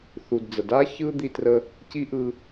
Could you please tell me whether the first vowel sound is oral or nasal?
oral